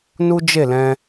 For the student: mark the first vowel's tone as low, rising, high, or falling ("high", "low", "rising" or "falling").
high